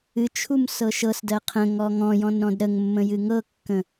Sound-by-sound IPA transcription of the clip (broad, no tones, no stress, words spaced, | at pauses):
ɨ t͡ʃʰumsɤʃɤsdɜ qʰə̃ ŋɔŋɔ̃jɔ̃n ɾɔ̃dɾəŋmːə̃ jɨŋɤkːə̃